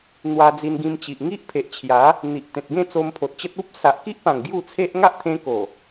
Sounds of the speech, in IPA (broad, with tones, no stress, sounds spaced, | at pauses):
n̪ w a˧ d͡z i˧ n ɡ ĩ˧ m t͡ɕ i˨ ʔ ŋ i˦ ʔ pʰ e˨ ʔ t͡ɕʰ j a˨˦ | n̪ i˨ ʔ t̪ ẽ˨ t̚ ɡ ẽ˥˧ t͡s o˧ m pʰ o˨ t̚ t͡ɕ ə˦ t̚ u˦ p̚ s a˨ ʔ k i˦ ʔ p ã˨˩ ŋ ɡ j u˥˧ t͡sʰ e˦ ʔ ŋ a˦ ʔ t̪ʰ ẽ˧ k o˨˩